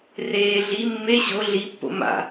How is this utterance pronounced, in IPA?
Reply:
r eː ɮ i mː e ɕ o ɮ i pː o̰ m a̰

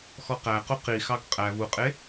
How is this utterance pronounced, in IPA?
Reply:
x ɔ q æ q u q i x ɑ ɡ qʼ æ v u qʼ e

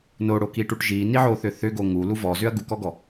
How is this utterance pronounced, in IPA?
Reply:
n o ɽ o k i ʈ u ʈ ʒ i n i ʕ o θ ʏ θ ʏ ɡ o ŋ u l u v ɔ z ʏ ɐ̯ ɡ u k ɔ ɡ ɔ

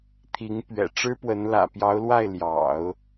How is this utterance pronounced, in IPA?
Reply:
t̪ʰ i˧˥ ŋ p ɥ ɛ̰˨˩ ʈ͡ʂ ɻ̩˥ p w ə˧˥ n l ä̰˨˩ p j ɑ˧˥ ʊ̯ l w a˥˩ ɪ̯ l j ɑ̰˨˩˦ ʊ̯

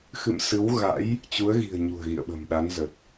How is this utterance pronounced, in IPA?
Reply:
x ɨ̰˧˨ m s ɨ˨˦ w ɣ a̰˧˥ j | t͡ɕ u˨˦ ə̯ ɣ i̤˨˩ ə̯ ɲ ṳ˨˩ ə̯ ɣ ḭ˧˨ ə̯ ɓ ə̤˨˩ m ɗ a˨˦ n z ə˨˩ t̚

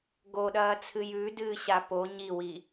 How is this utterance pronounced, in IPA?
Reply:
ɡ o ɗ ɐː t͡sʰ ɨ j ʉ d ɨː ɕ a p o ɲ i w i

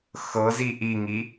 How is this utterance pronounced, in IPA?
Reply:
x ɤ z i ʔ i ŋ i

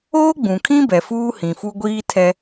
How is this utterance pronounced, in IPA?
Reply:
oː˦ ɡ͡b ũ˨ kʰ ĩ˦ b ɛ˨ f uː˦ h ĩ˨ f u˦ ɡʷ iː˦ tʰ ɛ˦

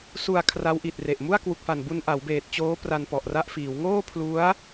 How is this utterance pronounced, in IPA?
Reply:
s u˨˩ a̯ kʰ r a˦˥ w ʔ i˨˩ t̚ r e˨˩ ʔ m u˥˩ a̯ k w u˨˩ k̚ f a˨˩ n b u˧ n ʔ a˩˦ w b eː˨˩ t̚ t͡ɕ oː˦˥ p r a˧ n p ɔ˨˩ ʔ r a˥˩ ʔ f iː˩˦ w ŋ oː˥˩ pʰ l u˦˥ a̯

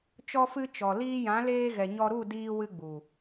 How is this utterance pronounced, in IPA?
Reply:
t͡ʃ ɔ˧ f ɨ˧ t͡ʃ ɔ˨ l iː˧ j ã˨˦ l eː˧ ɣ ɛ˨ ɲ ɔ˧ ɾ u˦˨ d iː˧ w ɨ˧ ɡ͡b u˨

